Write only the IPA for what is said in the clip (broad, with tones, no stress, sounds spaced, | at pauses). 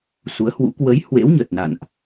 s u˨˦ ə̯ h w ṵ˧˥ k w ə˨˦ j h w ḛ˧˥ w ɲ ə˨˩ t̚ n a̰˧˨ n ʔ